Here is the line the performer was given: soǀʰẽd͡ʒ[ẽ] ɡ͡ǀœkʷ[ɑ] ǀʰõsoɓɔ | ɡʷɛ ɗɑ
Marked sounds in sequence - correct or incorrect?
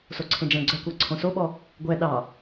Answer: incorrect: ɛ̃, correct

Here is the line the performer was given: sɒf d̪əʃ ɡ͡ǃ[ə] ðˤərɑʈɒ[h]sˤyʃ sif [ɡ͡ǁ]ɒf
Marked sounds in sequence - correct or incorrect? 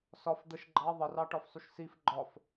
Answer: incorrect: ɑ, incorrect: f, incorrect: ɡ͡ǃ

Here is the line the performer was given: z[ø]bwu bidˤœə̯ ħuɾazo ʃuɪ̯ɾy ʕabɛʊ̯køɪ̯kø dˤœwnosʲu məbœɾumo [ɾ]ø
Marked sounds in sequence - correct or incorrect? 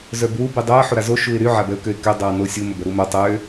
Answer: incorrect: œ, incorrect: tˤ

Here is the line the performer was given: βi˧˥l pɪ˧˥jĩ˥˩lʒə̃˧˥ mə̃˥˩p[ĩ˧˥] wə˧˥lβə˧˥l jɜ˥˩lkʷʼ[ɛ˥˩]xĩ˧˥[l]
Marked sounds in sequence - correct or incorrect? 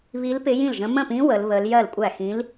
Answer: correct, incorrect: æ˥˩, correct

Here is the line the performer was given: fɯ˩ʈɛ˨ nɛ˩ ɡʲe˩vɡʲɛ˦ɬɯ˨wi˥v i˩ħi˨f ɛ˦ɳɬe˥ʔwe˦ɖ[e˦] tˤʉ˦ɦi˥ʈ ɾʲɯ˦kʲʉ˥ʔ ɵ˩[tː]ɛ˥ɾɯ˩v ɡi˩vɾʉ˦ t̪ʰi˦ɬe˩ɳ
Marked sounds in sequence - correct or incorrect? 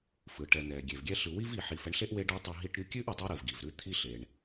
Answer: correct, incorrect: tˤ

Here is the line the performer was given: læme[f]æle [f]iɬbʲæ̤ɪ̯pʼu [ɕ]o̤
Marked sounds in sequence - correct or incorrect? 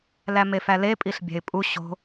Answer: correct, incorrect: pʼ, correct

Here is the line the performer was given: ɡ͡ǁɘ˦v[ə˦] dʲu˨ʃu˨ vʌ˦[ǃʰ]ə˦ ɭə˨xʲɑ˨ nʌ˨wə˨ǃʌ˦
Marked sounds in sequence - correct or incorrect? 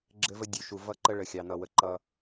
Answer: correct, incorrect: ǃ

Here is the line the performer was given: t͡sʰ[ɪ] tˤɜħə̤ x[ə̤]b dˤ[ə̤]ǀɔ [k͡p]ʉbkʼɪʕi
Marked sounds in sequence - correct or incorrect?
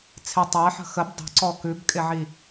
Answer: correct, incorrect: ə, correct, incorrect: k

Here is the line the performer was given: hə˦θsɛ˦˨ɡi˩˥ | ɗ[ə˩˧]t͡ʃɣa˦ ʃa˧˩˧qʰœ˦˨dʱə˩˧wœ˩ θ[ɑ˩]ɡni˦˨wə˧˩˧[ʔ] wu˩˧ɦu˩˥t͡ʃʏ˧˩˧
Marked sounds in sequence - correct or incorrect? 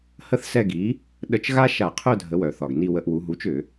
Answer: incorrect: ə˧˩˧, incorrect: ɒ˩, correct

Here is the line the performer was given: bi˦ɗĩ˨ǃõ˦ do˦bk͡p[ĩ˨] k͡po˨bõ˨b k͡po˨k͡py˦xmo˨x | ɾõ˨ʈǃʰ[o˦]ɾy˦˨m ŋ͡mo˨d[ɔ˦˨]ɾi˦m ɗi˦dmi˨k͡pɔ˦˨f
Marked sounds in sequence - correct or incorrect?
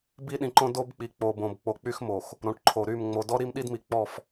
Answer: incorrect: i˨, incorrect: o˨, incorrect: ɔ˦

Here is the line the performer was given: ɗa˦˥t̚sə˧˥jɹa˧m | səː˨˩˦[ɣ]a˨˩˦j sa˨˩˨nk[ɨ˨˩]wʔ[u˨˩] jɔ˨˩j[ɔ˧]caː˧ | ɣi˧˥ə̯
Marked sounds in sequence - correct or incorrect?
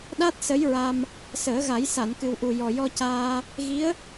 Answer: correct, correct, correct, correct

